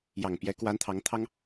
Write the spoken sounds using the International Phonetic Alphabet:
j ɑ˨˩ ŋ p j ɛ˧˥ k w a˧˥ n t̪ʰ ɑ˧˥ ŋ t̪ʰ ɑ˥ ŋ

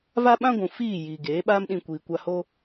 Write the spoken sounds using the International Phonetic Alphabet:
v a˦ ɓ ã˦ ɡʷ ũ˨ f iː˦˨ j iː˨ ɡ eː˨˦ ɓ aː˦ m ɗ ĩ˧ kʷ iː˨ kʷ a˧ h oː˦

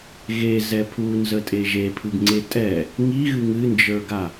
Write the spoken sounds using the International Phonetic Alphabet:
ɣ e z ɛ pʰ u n z ə tʼ e ʒ e pʰ ɨ ɡ ŋ͡ǀ e tʼ ɛ | ŋ i ɣ ɨ ŋ ɨ n d͡ʒ ə˞ ɡ a

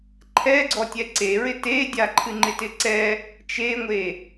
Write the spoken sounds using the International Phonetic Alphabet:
ǃʰ ɛ ɡ͡ǀ ɔ tʲ ɛ ǀ e ɹ ɪ t e dʲ a ǃʰ ɨ ŋ͡ǃ ɪ t ɪ ǀ ɛ | t͡ʃ e ŋʷ e

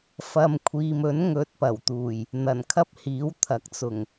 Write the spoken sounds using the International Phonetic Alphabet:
f ɐ˨ m kʷʰ iː˨ m ɵ˨˥ n ŋ ɵ˧ t̚ p ɐ˨˩ w t̪ uː˨˩ j | n̪ ɐ˨˩ n kʰ ɐ˥ p̚ h iː˨˥ w t̪ʰ ɐ˨˥ k̚ t͡s ʊ˨˩ ŋ

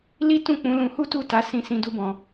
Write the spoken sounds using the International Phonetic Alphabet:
l i˦ t ũ˦˨ k͡p ũ˨˦ l ũ˧ h u˦ t u˦˨ t a˨˦ s ĩ˧ s ĩ˧ d u˧ b ɔ̃˨

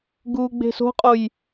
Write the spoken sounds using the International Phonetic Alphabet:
ɡ uː ɡ͡b e̤ s o̤ qʼ o j

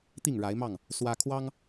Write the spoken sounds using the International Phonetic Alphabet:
t̪ i˥˨ ŋ ɻ a˨˦ ɪ̯ m ɑ˥˨ ŋ | s w ä˦ kʰ w ɑ˦ ŋ

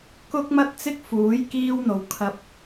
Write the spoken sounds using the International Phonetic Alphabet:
k ʊ˥ k̚ m ɐ˥ t̚ t͡s ɪ˥ k̚ f uː˨˥ j k iː˥ w n̪ o˨ w kʰ ɐ˧ p̚

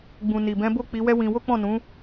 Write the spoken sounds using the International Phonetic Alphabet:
ɡ͡b ũ˨ n i˨ b ɛ̃˨˦ b o˦˨ k͡p i˨˦ w ɛ˦ w ĩ˧ w o˦ k͡p ɔ̃˦˨ n ũ˨˦

